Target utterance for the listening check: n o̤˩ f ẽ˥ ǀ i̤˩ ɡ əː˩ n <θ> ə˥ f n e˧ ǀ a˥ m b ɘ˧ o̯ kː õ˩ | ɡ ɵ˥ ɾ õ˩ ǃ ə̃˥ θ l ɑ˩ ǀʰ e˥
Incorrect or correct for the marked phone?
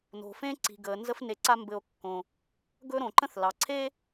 incorrect: z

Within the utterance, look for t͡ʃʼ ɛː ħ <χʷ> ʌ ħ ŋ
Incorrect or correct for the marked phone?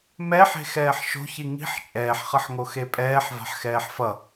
incorrect: χ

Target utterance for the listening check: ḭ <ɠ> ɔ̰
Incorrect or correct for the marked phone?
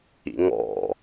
incorrect: ŋ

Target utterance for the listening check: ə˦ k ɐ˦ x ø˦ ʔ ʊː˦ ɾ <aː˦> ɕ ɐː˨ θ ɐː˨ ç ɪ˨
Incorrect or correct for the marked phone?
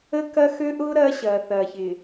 incorrect: ɐː˦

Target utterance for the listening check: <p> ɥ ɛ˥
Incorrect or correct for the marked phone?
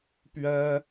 correct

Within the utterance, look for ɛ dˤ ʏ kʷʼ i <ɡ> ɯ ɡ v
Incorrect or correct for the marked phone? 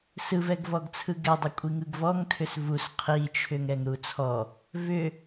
incorrect: ŋ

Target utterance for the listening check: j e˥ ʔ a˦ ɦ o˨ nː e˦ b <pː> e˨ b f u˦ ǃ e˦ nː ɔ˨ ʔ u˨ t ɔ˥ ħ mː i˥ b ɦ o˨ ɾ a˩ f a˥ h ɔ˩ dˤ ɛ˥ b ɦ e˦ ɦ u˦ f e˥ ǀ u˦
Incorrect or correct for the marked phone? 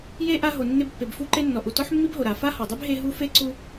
correct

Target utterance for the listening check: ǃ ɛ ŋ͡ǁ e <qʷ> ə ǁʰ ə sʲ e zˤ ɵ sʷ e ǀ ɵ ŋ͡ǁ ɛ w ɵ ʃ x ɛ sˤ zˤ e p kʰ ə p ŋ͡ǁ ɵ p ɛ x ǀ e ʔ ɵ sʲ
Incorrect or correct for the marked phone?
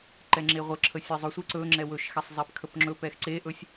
incorrect: ʁʷ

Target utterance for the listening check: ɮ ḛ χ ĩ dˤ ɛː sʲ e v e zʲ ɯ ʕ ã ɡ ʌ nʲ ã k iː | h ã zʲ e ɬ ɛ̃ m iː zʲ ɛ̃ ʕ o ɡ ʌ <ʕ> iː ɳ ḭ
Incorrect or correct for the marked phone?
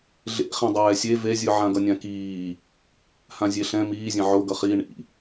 incorrect: χ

